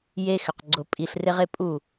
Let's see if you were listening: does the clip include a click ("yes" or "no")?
yes